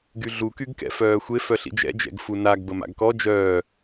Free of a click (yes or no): yes